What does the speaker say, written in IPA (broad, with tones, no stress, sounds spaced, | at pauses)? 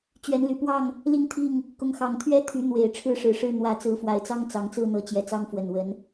t͡ɕ ɥ ɛ˨˦ n l y˨˩ p w ɑ˥˨ ŋ | l i˥˨ ŋ t̪ʰ i˥˨ ŋ | k ʊ˨˦ ŋ x ɑ˨˩ ŋ t̪ʰ ɥ ɛ˦ t̪ʰ y˨˦ n̪ w e˨˩ ɪ̯ ʈ͡ʂʰ ɻ̩˦ ʂ ɻ̩˨˩ ʂ ɻ̩˥˨ n̪ w ä˨˦ t͡s ɹ̩˨˦ f w a˨˩ ɪ̯ t͡s ɑ˦ ŋ t͡s ɑ˨˦ ŋ t͡s ɹ̩˥˨ n̪ ɤ˨˦ t͡ɕ j ɛ˨˩ t͡s ɑ˦ ŋ f w ə˨˩ n w ə˨˦ n